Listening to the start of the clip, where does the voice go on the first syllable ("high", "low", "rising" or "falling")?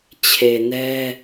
low